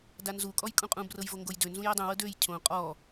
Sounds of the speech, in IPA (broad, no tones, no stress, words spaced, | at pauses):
danzukʼɔj kʼũqʼũbrɤjvo ŋɡojdø nzũjɤdˤũwɤ døj cʰõ qʼɔ